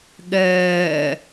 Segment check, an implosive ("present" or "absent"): present